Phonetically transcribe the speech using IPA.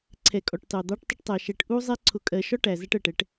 ǀʰ ɛ˨ kʼ ɔ˨ ʈ t ɑ˨ d̪ ɑ˦ ʈ tˤ ʊ˦ ʈ tˤ æ˨ ʃ ɛ˨ ʈ ʔ u˦ zˤ ɛ˦ ǀʰ ʊ˨ kʼ ɜ˨ ʃ ɒ˦ ʈ æ˨ z æ˦ ʈ ɜ˨ ʈ ɛ˨˦ ʈ

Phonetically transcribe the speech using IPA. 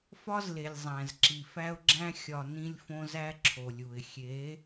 f ɒ˦ z l e˨ lʲ zˤ æ̃˨ z ǁ i˨ f æ˦ ʊ̯ ɡ͡ǁ æ̃˦ xʲ ɒ˨ n ĩ˦ lʲ f õ˦ z æ˦ ǁʰ o˨ lʲ u˨ ɪ̯ xʲ e˨˦

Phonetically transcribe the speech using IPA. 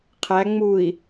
qʰ æ ŋ͡m u i̯

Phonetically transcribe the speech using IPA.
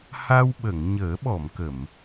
h a˧ w ɓ ə˨˩˨ ŋ ɲ əː˨˩˦ ɓ ɔ˨˩˨ m k ə˨˩˨ m

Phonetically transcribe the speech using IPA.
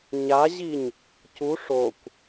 ɲ a ʑ i ɲ | c u ʂ o kʷ

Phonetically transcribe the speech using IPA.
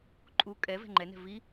ǃʼ u kʼ ɛ v ɛ̤ ŋ͡ǃ ɛ n ɛ̤ v i

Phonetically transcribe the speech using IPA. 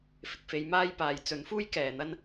f ɪ˨ k̚ f e˨˧ j m aː˥ j p aː˨˧ j t͡s ɵ˨˥ n f uː˥ j k ɛː˨ n̪ ɐ˥ n

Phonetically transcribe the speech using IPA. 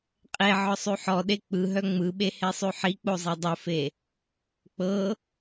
qʼ e ʕ ɔ sˤ ʉ ħ ɔ ɗ e k͡p ɯ ɦ œ ŋ͡m ɯ ɓ e h e sˤ ʉ ħ i k͡p o zˤ e dˤ o f e | k͡p ɤ

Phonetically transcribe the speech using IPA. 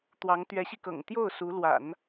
t̪ w ɑ˧˥ ŋ t̪ ɥ ɛ˧˥ ɕ i˧ k ɤ̰˨˩ ŋ t̪ j o˥˩ ʊ̯ s u˧˥ l w a̰˨˩˦ n

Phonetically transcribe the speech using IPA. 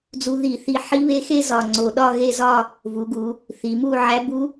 d͡z u˧ ð i˧˩˧ θ i˧ ħ i˧˥ β e˧˥ x e˥˧ z ɒ˨˩ ŋ͡ǀ o˨˩ ɗ ɒ˥˧ ɣ e˥˧ z ɒ˥˧ | v u˩˧ ɡ u˩˧ | θ i˩˧ m u˥˧ ʕ æ˧˥ b u˧˥

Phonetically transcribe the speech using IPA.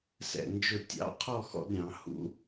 s ɛ̰˧˩ n d͡ʒ ʊ˧˩ tʲ ɑ̰˥ qʰ ɔ˥˧ x ɔ̰˥˧ d ɾʲ ɑ̃˩˧ h ṵ˥

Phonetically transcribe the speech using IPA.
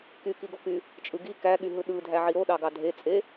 k y k i ɡ o k y | t͡ʃʼ ɯ ɡ i k æ ɠ y ɦ ɯ ɗ ɯ dʱ æ ʕ i ɾ o ɗ ɑ ɡ ɑ dʱ e t͡sʼ e

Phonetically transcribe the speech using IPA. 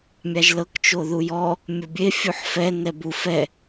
mʲ a ʒ l ɤ k t͡ʃ o ð u j ɔ | mʲ o bʲ e fʲ u ħ f ɛ n ɛ b u f ɛ

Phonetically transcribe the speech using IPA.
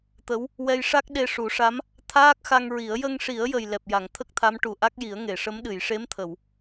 t̪ ə˧˥ w | w ɛ˧ j ʂ a˦˥ k̚ ɗ e˧ ʂ u˨˩˦ ʂ a˧˥ m | t̪ʰ aː˦˥ k̚ x a˧ ŋ ɹ i˨˩˦ ə̯ j ə˧ ŋ ʂ i˨˩˦ ə̯ j ə˨˩ j l ɛ˨˩ p̚ j a˨˩˨ ŋ t̪ʰ ə˦˥ k̚ t̪ʰ a˧˥ m ʈ u˨˩ ʔ a˦˥ k̚ j i˨˩˦ ə̯ ŋ e˨˩˨ ʂ ə˧˥ m ɗ ɨ˨˩˨ j ʂ e˧˥ m t̪ʰ ə˨˩˨ w

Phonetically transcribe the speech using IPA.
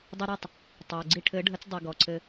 dˤ i˧ ɾ i˦˨ tˤ | tˤ i˨ ə̯ ɡ͡ǀ i˧ ʈʰ ɘ˨˦ ɖʱ ə˨˦ t͡s dˤ i˨ ɡ ɔ˨ ǀʰ ɘ˧

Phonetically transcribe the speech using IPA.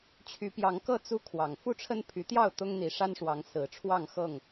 t͡ɕʰ y˨˦ p j ɑ˨˦ ŋ k ɤ˥˨ t͡s u˦ kʰ w ɑ˨˩ ŋ f u˥˨ ʈ͡ʂʰ ə˦ n pʰ y˨˦ t̪ j ɑ˥˨ ʊ̯ t̪ ʊ˦ ŋ n̪ i˨˦ ʂ a˦ n ʂ w ɑ˨˦ ŋ s ɹ̩˨˦ ʈ͡ʂʰ w ɑ˥˨ ŋ x ɤ˥˨ ŋ

